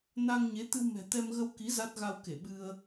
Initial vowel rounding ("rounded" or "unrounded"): unrounded